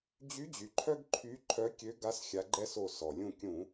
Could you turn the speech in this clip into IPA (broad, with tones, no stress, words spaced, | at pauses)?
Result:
d͡ʑy˨˦d͡ʑy˩ ǃʰœ˦ɡǃʰy˨˦ǃʰœ˨˦ kʲø˨˦ɡa˨˦s xʲa˨˦ɡ͡ǃɛ˦so˧˩ sɔ˩ lʲũ˧˩kʲũ˧˩˧